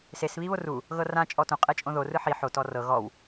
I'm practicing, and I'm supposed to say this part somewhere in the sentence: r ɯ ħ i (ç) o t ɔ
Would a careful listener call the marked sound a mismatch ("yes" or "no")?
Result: yes